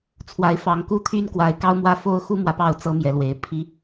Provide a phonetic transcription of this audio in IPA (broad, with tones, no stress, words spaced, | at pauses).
t͡sʰwa˨˦ɪ̯fɑ˨˦ŋku˦t̪ʰy˦n kwa˨˦ɪ̯kɑ˦ʊ̯mwä˦ fo˦ʊ̯xu˦mwä˨pɑ˥˨ʊ̯ t͡sɤ˦mjɛ˨˦lwe˨˦ɪ̯ pʰi˦